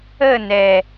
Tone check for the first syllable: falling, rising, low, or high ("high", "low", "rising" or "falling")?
falling